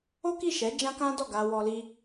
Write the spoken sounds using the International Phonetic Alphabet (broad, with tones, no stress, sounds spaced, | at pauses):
o˦ k i˦˨ ʃ ɛ˨˦ d͡ʒ ã˦ k ã˦ d ɔ˦˨ ɡ a˧ w ɔ˧ l i˧